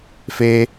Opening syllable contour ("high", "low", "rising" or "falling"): high